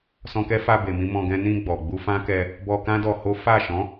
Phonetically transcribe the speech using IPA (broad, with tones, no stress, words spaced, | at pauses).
sɔ̃˧kɛ˦fa˧ be˨mĩ˧ mɔ̃˧ɡɛ̃˦ nĩ˧ ɡ͡bɔ˨ ɡ͡bu˧fã˦kɛ˧ | bɔ˧kã˦ dɔ˧ho˦ fa˦˨ ʃɔ̃˨˦